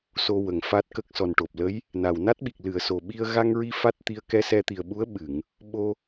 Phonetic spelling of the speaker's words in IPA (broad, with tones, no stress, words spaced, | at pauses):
so˧wə˨˩˨ŋfa˦˥t̚kə˦˥k̚ sɔ˨˩nʈo˨˩p̚ lə˧˥j | na˨˩wna˦˥t̚ɓi˨˩k̚ lɨ˨˩˨ə̯ so˨˩ɓi˧ə̯ ɣa˧ŋɹi˧ fa˦˥t̚t̪i˧ə̯ kɛ˧sɛ˧t̪i˨˩ə̯ɓu˧˥ə̯ ɓɨ˨˩˨ŋ | ɓo˧